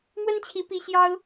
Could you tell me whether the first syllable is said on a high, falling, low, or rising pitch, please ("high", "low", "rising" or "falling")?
high